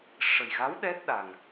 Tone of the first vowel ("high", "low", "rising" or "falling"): low